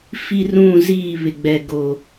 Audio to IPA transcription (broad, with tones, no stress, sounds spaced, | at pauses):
f i˦ r ũ˦˨ z iː˦˨ β ɪ˨ ɡ͡b ɛ˨ ɡ oː˨